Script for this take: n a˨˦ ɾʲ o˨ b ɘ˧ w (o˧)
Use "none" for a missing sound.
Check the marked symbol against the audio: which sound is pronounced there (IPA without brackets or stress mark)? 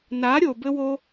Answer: o˧